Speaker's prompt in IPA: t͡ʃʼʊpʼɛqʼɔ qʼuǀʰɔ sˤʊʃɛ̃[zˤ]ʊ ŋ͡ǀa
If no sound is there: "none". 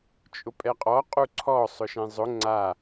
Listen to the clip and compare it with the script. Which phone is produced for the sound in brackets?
zˤ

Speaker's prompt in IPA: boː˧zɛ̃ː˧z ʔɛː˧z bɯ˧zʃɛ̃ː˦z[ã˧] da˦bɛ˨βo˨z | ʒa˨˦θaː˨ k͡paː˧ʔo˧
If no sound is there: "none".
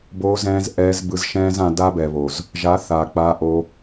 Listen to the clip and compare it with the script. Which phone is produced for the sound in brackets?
ã˧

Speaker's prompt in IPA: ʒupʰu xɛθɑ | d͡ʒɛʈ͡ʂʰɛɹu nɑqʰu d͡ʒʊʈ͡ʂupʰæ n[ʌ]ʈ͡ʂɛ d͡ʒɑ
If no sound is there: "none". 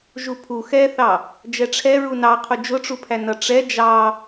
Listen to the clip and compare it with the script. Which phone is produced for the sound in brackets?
ʌ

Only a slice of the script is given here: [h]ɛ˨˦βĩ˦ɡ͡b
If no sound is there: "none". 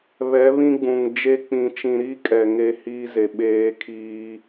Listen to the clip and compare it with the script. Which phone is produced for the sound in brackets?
β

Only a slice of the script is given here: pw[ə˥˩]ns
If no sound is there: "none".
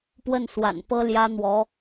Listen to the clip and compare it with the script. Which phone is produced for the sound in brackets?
ə˥˩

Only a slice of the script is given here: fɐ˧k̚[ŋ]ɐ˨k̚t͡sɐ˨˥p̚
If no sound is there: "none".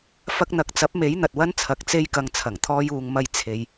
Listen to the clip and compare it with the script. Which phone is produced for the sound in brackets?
n̪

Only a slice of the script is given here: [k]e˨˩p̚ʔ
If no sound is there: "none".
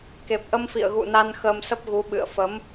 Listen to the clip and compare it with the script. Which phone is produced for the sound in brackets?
k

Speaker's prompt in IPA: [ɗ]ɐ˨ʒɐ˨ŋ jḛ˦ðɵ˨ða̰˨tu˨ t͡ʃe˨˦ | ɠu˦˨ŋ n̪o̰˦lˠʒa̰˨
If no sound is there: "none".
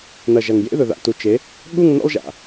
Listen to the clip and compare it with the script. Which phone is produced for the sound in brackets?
n̪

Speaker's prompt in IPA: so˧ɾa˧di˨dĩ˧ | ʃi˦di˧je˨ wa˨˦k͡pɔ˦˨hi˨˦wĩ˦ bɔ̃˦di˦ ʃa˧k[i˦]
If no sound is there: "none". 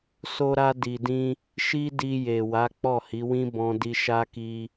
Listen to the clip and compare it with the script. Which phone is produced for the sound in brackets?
i˧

